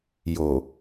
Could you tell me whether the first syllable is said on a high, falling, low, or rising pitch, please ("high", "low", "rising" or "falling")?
low